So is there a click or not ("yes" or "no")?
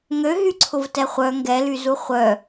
yes